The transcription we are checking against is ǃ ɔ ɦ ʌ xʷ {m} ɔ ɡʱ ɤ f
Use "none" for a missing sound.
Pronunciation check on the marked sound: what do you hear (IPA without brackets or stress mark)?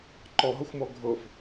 m